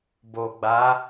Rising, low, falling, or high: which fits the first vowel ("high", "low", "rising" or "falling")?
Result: low